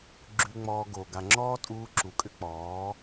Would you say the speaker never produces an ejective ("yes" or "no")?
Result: no